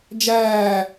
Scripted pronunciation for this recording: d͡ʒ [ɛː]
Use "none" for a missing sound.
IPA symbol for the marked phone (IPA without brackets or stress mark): æː